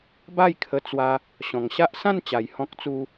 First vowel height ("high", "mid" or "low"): low